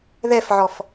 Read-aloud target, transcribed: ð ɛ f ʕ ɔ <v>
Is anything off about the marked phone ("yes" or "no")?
yes